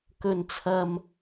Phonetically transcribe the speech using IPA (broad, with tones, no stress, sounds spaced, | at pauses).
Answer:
k ɵ˨ n t͡sʰ ɐ˨ m